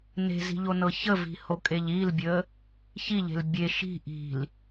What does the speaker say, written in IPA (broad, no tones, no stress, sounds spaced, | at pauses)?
n e̤ z i̤ ʎ o n ɤ ç ə v i̤ h o kʼ e ʎ i l bʲ ə | ç i ʎ e̤ l bʲ e ʃ i̤ ʔ i̤ l